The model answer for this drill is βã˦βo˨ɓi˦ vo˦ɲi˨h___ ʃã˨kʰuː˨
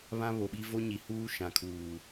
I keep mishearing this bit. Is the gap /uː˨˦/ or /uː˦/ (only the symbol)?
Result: uː˦